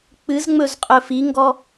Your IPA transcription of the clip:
k͡pɨz ŋ͡mɵzqʼɵfiŋɡɔ

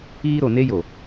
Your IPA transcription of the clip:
iː˦ ɾo˨ne˦jo˨

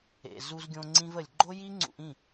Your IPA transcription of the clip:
ḛ˩ zu˧zɡʲõ˧ ŋ͡ǀĩ˧və˩lʲ ɡ͡ǃo˥ji˥ŋ͡ǀṵ˧ʔ ĩ˥˩

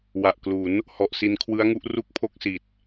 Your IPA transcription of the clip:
wa˨˩ʔklu˩˦n | hɔ˨˩ʔsi˧nkʰwɯ˦˥a̯ŋu˦˥ʔ ru˥˩k̚pʰo˥˩k̚si˨˩t̚

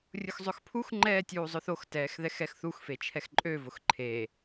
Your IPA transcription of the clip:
rʲʊxzˤøxpʰux ŋ͡ǃɛːtʲuːzˤʊθox tɛːxðɛxɛxθux fet͡ʃʰɛxǃʼøvʊx ǃʰe

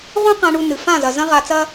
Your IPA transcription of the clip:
ʁũ˦qã˧ ɳu˧nɨ˨ fã˦˨zɐ˨ zɐ̃˦ʁa˧t͡sɐ˦

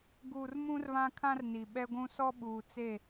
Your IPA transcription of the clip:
ɡuː˨r mũ˦rβã˦kʰã˦rni˨ ɓɛ˦ɡʷũ˦ sɔ˦ɓuː˨t͡se˦˨

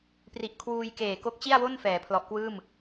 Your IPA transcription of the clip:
pri˨˩ʔkʰwuː˧j keː˨˩ ko˦˥k̚t͡ɕi˥˩a̯wo˥˩n fɛː˩˦pʰlɔ˨˩ʔkwɯː˥˩m

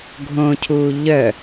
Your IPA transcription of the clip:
ɡʱõcʰuː ʎœ

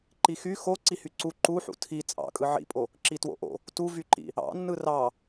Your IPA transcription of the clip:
ǃixy xo ǀihyǀu ǃuħṵ tʰi t͡sʼɑ̰kʼɯ ʕḭpʼo | ǁitwo̰ʔo̰ | tuvyǃḭ | ɑ̰ nːɯrɑ

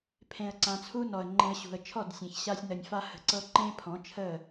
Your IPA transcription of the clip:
pʰẽ˧ə̯ǀã˧t͡sʰu˦ nɔ˨ə̯ŋ͡ǃẽ˧ə̯ɕṳ˨ə̯ t͡ʃʰɔ˦˨dsʲẽ˨çɕa˧sʲnə˨nʲ fa˧hə̤˨ǀɤ˧ ǃẽ˦ pʰɔ̃˨˦t͡ʃʰə˦˨

